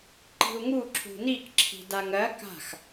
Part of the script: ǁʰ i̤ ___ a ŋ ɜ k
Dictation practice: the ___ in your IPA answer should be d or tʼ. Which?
d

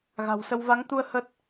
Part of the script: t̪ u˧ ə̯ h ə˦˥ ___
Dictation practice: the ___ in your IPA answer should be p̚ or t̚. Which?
t̚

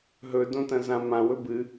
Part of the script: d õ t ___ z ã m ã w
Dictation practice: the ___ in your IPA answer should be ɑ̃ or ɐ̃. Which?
ɐ̃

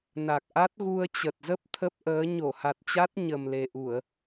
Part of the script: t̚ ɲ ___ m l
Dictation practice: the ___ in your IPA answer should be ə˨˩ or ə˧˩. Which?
ə˨˩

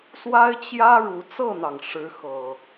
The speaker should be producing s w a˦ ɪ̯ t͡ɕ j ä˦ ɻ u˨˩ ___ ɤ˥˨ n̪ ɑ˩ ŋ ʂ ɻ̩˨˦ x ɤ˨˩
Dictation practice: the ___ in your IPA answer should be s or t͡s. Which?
t͡s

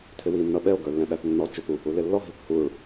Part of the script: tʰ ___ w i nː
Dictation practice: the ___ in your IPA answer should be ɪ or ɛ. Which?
ɪ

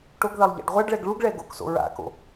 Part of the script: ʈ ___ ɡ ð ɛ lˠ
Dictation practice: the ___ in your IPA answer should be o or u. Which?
o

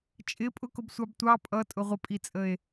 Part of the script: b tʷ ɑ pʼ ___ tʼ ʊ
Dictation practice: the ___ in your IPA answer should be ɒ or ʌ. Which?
ʌ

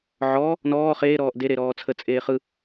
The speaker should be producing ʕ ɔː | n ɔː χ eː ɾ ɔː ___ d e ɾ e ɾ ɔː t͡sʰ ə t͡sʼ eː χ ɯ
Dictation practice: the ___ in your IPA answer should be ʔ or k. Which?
ʔ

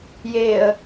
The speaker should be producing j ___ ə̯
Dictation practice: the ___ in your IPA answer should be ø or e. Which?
e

